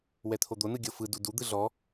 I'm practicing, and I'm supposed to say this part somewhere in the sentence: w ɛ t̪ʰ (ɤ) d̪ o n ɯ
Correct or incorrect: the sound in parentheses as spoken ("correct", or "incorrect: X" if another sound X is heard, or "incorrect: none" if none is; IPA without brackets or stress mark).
incorrect: o